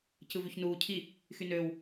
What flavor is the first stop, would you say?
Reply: plain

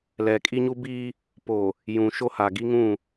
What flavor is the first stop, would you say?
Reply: ejective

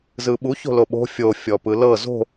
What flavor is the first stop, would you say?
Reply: implosive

